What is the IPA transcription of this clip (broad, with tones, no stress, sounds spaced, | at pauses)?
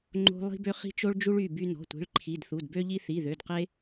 ŋ͡ǃ o̤˦ lˠ i̤˦ b ø˦ χ i̤˦ t͡ʃ o˦ ɭ d͡ʒ u˦ ɭ y˩˧˩ b y˦ n ɔ̤˩˧˩ tʷ i̤˩˧˩ ɭ ǃʰ i˩˧˩ d θ u˩˧˩ d b ø˦ ʎ i˦ θ i˩˧˩ ð ø˩˧˩ d q e˦